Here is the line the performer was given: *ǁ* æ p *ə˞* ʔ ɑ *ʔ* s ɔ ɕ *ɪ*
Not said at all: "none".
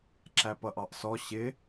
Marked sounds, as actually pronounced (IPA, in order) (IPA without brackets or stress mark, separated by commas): ǁ, ʌ, ʔ, ɪ